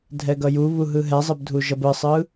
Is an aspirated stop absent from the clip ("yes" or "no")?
yes